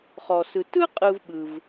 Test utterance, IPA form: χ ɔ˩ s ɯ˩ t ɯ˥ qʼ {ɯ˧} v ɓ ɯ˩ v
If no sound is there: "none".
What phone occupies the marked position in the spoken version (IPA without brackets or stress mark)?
ɯ˧